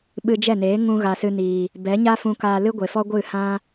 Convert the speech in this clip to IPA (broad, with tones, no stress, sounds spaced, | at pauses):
ɓ ɨ˧ d͡ʒ ɛ˦˨ n eː˨˦ ŋ ũ˧ ɣ a˨ s ɨ˧ n iː˨ | b ɛ˨˦ ɲ a˦ f ũ˧ k aː˧ l ɨ˦ ɡʷ e˨ f ɔ˦ ɡʷ ɨ˦˨ h ã˦